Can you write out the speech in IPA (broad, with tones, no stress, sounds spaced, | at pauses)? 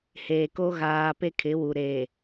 h eː˨ k o˦ ɣ aː˦ p e˦ kʰ ɪ˨˦ w u˨ ɾ eː˨